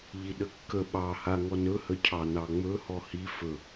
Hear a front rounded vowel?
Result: no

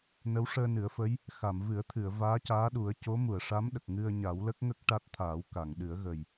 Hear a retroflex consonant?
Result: yes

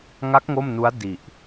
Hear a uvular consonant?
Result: no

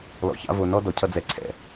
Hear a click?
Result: yes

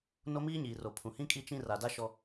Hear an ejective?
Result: yes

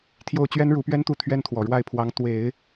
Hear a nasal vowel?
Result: no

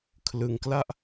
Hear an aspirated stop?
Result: yes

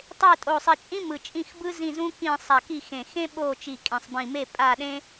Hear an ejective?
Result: yes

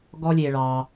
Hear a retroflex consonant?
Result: yes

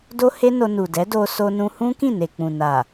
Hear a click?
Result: no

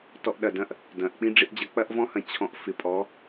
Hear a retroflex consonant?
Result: yes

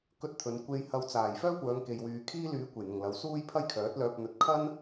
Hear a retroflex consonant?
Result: no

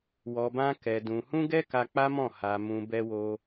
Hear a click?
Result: no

